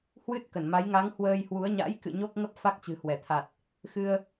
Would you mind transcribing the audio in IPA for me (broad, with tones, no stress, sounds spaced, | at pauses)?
h w ɨ˦˥ t̚ k ə˧˩ n m a˨˦ j ŋ a˨˦ ŋ h w əː˧ j h w u˨˦ ə̯ ɲ a̰˧˥ j k ɨ̰˧˨ ɲ o˦˥ k̚ ŋ ə˦˥ p̚ f a˦˥ k̚ t͡ɕ ɨ̤˨˩ h w ɛ˧˩ t̪ʰ a˨˩ t̚ | x ɨ˧ ə̯